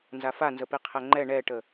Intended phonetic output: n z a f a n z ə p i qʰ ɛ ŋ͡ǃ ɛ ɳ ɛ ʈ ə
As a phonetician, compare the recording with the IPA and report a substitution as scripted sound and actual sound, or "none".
none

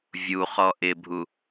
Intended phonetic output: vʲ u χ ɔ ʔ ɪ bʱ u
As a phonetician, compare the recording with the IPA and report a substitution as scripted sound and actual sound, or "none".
none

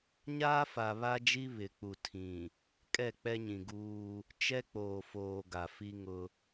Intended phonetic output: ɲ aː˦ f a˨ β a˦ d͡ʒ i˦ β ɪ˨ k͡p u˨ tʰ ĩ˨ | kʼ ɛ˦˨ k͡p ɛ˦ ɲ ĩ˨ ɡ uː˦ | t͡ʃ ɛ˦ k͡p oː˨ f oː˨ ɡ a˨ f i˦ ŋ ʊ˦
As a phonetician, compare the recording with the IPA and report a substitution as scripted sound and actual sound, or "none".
none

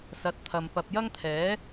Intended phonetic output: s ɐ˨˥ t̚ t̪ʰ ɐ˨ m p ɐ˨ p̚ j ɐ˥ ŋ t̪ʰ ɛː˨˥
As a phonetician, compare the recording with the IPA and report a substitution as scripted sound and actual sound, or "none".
none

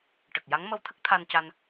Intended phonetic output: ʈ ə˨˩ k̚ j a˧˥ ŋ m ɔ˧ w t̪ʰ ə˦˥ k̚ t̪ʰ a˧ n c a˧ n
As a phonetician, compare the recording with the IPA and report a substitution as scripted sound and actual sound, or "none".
ɔ˧ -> ə˧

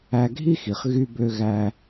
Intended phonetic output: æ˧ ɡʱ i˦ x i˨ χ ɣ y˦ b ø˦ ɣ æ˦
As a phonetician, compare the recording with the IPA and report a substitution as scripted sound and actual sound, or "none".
none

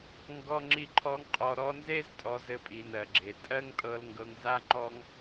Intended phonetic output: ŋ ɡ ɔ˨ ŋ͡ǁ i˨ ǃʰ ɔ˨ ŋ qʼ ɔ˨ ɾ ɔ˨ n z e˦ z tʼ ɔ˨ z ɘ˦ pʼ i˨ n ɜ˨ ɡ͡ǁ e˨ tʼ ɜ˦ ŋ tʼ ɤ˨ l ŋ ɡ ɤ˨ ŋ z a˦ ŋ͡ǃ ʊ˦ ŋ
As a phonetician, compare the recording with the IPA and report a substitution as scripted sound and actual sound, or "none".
ʊ˦ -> ɔ˦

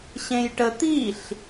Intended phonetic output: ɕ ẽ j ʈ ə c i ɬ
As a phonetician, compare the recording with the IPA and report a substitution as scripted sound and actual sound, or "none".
c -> t̪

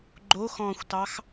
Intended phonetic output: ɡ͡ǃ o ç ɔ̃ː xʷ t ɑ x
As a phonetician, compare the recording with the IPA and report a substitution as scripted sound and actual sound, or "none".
ç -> x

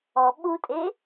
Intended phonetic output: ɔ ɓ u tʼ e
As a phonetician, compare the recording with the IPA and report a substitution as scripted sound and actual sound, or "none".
none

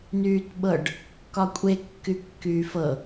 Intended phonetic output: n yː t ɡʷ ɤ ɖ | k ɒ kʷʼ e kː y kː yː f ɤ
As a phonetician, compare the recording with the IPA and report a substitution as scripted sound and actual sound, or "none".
ɡʷ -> ɓ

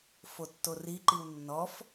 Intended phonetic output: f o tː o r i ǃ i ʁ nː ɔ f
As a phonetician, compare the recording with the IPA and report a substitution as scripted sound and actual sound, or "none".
ʁ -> w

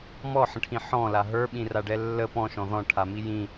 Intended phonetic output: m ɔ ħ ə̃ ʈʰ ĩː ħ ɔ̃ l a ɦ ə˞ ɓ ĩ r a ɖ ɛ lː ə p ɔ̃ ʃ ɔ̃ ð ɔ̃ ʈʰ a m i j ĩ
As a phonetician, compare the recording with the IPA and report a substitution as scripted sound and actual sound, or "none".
ĩː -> ĩ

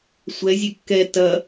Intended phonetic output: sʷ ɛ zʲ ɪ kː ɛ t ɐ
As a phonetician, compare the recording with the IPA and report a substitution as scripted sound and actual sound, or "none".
ɪ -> ɛ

